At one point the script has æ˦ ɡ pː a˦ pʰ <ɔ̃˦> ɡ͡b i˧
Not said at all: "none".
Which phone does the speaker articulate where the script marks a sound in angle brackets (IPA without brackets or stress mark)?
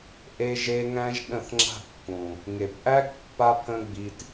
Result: ə̃˦